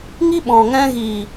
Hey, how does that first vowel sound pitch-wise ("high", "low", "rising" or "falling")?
high